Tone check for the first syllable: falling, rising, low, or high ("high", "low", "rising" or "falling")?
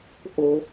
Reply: high